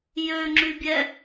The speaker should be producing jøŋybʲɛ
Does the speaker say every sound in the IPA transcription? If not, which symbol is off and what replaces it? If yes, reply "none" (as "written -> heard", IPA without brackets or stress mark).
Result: ŋ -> ŋ͡ǁ